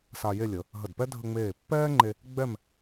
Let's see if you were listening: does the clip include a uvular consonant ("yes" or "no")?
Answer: no